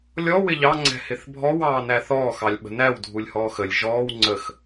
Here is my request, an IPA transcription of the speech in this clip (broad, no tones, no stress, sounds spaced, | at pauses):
lʲ ɔ w ɪ ʎ ɑ ŋ͡ǀ ɛ̤ h ɪ θ bʱ ɔ w ɑː n æ θ ɔː x ɑ lʲ ɓ ə̤ n æ w dʱ u lʲ h ɔː x ə lʲ ʒ ɔː w ŋ͡ǀ ə x